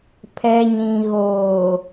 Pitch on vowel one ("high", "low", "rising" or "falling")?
low